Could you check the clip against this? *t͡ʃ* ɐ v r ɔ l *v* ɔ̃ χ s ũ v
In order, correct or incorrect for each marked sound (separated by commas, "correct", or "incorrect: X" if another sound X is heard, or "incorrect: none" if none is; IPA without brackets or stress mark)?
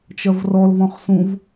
correct, correct